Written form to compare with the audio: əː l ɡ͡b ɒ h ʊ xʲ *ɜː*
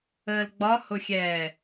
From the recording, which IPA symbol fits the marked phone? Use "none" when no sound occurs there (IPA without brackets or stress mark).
ɛː